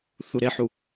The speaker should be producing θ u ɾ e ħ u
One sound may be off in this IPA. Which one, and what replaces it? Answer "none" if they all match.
none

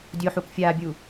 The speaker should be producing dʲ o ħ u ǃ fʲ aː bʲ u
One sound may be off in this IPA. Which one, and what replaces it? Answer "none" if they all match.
ǃ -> k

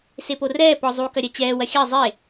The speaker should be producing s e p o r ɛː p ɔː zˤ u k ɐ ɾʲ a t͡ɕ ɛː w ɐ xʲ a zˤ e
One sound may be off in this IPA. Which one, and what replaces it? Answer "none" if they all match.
ɔː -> ɔ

